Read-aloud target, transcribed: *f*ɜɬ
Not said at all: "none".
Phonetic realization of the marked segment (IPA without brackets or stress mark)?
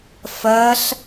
f